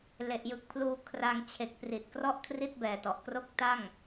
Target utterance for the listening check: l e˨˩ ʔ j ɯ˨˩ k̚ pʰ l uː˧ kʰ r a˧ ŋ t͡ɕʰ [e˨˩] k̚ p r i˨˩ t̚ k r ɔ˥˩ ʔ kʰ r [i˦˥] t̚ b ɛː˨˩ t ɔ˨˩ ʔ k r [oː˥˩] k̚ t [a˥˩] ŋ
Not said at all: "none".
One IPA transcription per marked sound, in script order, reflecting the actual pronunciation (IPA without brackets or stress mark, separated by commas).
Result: e˨˩, i˥˩, o˥˩, a˥˩